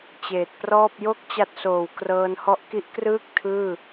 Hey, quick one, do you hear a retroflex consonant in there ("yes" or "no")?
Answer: no